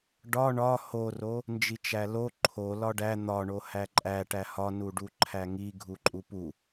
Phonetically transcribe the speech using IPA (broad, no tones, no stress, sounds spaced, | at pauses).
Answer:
ɖ ɒ ɳ ɒ h o r o | n d͡ʒ i t͡ʃ æ l o ǃʰ o l ɒ ɖ æ n̪ ɒ ɳ o h æ ǃʼ æ ʈ æ h ɒ n u ɖ u ǃʰ æ ŋ i ɡʱ u ǃʼ u p u